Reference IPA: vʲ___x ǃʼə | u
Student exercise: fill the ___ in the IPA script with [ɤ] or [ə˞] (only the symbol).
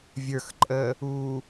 ə˞